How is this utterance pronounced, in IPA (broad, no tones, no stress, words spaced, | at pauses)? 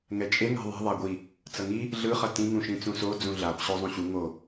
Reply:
ŋɛt͡ʃʼe ŋɛ̤ðˤɛ̤ ðˤaɡʷi | t͡sʌŋi | ɮɯ χʌtĩ ŋũʃĩt͡sũso d͡zũɮab ɕozˤũɕu ŋo